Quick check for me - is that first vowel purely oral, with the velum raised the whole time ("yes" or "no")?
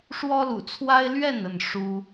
yes